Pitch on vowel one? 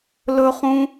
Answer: high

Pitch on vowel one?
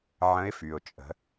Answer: rising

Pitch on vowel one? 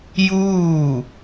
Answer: falling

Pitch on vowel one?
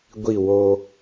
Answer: falling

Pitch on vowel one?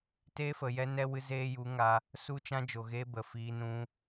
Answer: high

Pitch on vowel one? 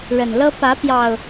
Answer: low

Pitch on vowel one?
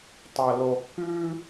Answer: low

